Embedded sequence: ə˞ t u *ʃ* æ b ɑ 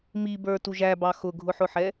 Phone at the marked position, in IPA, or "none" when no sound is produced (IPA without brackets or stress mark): ʒ